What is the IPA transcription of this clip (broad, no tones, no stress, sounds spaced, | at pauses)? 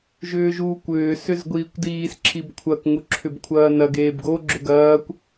ʒ ʏː ʒ uː kʷ ʏː s ʏ z ɡʷ iː kʷ d iː s ǁʰ i b kʷʰ ɐ k ŋ u ǁʰ ʏ b kʷʰ ɐː n ɐ ɡ eː b ɡ o ɡ͡ǁ ʏ ɡ ɐː kʷ